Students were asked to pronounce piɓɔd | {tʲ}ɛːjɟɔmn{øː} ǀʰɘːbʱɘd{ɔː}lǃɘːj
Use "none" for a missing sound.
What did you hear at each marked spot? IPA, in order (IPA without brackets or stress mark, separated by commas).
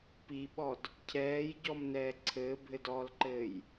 cʰ, ɛː, ɔː